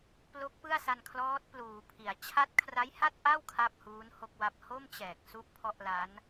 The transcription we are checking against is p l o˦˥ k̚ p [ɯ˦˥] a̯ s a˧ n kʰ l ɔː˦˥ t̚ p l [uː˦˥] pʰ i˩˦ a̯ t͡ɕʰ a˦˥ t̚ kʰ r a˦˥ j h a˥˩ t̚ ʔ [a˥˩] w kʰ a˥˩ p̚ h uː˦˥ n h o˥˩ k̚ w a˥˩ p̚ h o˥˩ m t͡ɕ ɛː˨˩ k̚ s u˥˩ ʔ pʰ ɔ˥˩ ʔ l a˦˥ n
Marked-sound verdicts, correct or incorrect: incorrect: ɯ˥˩, incorrect: uː˩˦, correct

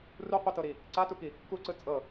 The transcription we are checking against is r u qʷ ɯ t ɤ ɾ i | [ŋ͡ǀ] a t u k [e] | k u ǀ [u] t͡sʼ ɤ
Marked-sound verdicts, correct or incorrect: incorrect: ǀ, incorrect: i, incorrect: ɯ

